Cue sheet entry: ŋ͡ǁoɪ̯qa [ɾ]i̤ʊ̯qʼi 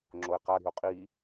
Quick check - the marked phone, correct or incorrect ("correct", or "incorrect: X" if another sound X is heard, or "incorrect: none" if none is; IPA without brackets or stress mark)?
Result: correct